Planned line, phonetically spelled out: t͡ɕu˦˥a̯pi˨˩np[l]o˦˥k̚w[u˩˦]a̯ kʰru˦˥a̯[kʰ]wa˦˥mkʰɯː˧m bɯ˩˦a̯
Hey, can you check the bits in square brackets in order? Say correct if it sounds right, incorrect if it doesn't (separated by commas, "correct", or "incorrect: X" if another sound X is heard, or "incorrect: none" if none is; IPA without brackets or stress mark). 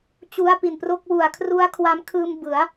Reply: incorrect: r, incorrect: u˨˩, correct